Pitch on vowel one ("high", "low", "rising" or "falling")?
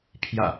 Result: low